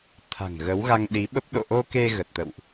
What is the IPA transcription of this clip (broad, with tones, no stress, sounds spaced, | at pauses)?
t̪ʰ a̤˨˩ ŋ ɣ ə˨˦ w ɣ a˧ ŋ ɗ i˨˦ ɓ ə˦˥ p̚ ɗ o̰˧˨ ʔ o˧ k e˧ ɣ ə˨˩ t̚ t̪ ə̰˧˨ w ʔ